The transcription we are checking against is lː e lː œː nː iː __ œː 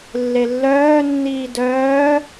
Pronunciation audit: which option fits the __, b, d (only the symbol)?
d